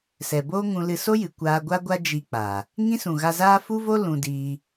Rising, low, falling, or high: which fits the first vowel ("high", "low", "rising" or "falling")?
low